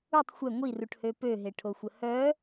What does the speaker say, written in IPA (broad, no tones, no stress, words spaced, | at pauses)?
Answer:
utˤ xʷɛ ŋʷiruʈhø pøɦeʈʰoxʷə hœ